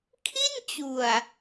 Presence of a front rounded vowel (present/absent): absent